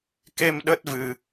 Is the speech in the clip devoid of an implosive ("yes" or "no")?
no